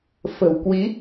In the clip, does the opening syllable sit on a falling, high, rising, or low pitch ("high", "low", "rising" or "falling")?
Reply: low